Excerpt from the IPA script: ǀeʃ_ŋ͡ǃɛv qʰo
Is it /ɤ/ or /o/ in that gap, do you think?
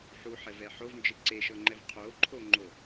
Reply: ɤ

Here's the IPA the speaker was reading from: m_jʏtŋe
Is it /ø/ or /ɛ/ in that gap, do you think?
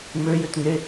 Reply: ø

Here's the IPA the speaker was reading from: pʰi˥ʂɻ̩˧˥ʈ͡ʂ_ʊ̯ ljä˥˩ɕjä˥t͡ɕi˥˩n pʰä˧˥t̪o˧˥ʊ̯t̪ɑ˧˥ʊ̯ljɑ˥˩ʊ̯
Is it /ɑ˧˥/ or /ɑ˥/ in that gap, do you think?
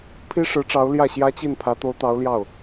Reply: ɑ˧˥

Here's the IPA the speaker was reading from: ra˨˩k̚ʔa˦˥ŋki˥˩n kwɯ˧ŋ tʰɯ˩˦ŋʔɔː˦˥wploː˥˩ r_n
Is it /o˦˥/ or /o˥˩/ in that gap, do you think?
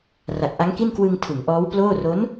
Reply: o˦˥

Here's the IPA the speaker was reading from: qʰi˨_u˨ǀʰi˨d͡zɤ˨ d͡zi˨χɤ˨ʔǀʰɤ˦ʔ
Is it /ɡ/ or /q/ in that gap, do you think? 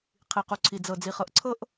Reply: q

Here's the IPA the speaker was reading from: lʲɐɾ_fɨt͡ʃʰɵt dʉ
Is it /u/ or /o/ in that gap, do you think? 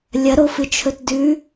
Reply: o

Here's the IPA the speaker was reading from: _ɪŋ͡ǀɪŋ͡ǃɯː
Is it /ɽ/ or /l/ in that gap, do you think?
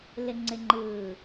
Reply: l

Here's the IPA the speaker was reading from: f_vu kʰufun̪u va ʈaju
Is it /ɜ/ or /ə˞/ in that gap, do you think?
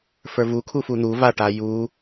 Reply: ə˞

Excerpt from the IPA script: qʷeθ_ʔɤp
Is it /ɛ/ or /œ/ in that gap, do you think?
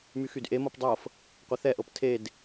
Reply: ɛ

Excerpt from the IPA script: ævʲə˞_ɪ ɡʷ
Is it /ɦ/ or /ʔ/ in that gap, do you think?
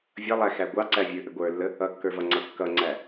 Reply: ʔ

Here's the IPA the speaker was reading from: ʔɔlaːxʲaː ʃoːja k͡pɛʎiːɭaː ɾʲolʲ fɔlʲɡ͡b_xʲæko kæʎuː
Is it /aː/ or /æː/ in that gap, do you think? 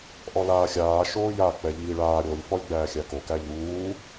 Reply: æː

